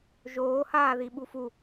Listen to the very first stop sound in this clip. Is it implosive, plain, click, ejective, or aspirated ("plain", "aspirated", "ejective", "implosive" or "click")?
implosive